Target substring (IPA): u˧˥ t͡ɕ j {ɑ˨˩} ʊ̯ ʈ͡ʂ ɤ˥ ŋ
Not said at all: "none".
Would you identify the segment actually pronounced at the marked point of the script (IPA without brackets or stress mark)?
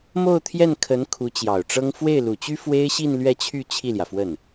ɑ˨˩